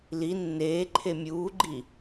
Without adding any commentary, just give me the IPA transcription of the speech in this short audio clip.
li nːeːǃʰe mʲuːɡ͡ǃi

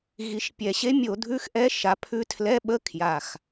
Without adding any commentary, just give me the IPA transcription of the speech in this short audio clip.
ɣi˨˩ʃpʲɛ˨˩ɕe˧˥mʲo˧˩˧ dʱʉ˧˥˧xʔɛ˧˥ʃa˩˥ pʰʉ˧˥tʰlɛ˧˥˧ ɓə˧˥˧ kʰja˨˩x

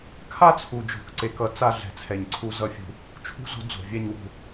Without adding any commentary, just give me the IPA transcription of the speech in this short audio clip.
kʰa˦t͡sʰu˨d͡ʒo̤˨kǀe˨k ʌ˨ t͡sa˦ ɮɛ̤˨t͡sʰɛ˨ɲǀʰu˦ zʌ˦˨fʲṳ˦ | t͡ʃʰṳ˦zo̤˦ d͡zo̤˨vʲɛ˦ɲwṳ˦

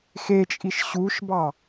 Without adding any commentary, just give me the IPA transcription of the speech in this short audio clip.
xet͡ʃʼiʃ ɕuʃbɑ

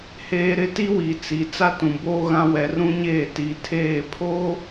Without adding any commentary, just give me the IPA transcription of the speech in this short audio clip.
heː˨ ɾɪ˦ti˦wi˨t͡si˨ t͡sa˦tũ˨boː˦ɣã˦ wɛ˨rũ˦ɲeː˦˨ ti˨tʰeː˦˨pʰoː˦

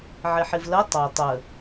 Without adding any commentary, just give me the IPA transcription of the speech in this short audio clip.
ʕɪħɪvlɜ tˤɑ tˤə

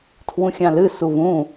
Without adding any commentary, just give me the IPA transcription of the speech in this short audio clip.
tʰwũxʲãlɨ suvũ

